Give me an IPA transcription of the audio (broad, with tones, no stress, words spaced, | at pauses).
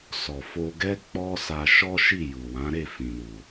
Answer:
sɔ˨fo˧ɡɛ˦ k͡pɔ˦sa˧ ʃɔ˦ʃi˦˨ ju˨wã˨˦ ɾe˦˨fĩ˨ nu˨